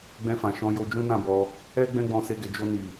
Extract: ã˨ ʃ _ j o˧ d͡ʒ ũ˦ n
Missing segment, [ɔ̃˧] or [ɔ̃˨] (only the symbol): ɔ̃˧